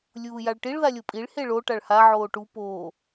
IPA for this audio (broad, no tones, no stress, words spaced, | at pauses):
lʲuːjaɭʈiɭ ðalʲopʼiɭ heɭo ʈaɭha ʕoːʈu poː